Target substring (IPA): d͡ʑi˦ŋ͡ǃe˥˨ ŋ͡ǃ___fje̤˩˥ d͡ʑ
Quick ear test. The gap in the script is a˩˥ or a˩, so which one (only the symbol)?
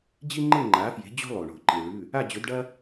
a˩˥